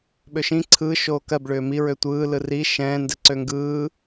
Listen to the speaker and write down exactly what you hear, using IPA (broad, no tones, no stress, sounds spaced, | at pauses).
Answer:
ɓ ø ʃ ĩ ǀʰ ɯː ʃ oː k ɜ b ɭ ʏː m i ɹ ø tʷ ɯː l ɯ r i ʃ ɛ̃ː n d ɛ ǀ ø ŋ ɡ ɯː